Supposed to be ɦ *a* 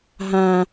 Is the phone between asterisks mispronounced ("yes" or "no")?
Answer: yes